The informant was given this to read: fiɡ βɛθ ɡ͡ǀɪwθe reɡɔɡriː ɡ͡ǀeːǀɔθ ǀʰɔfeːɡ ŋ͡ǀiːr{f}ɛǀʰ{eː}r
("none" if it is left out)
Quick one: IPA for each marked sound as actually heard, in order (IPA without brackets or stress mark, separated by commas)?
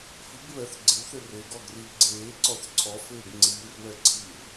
β, iː